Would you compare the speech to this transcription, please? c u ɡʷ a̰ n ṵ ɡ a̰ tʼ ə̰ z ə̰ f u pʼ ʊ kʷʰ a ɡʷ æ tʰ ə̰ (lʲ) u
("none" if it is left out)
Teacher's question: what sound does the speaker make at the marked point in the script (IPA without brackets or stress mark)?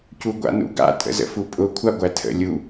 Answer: lʲ